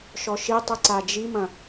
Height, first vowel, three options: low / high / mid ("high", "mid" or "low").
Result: mid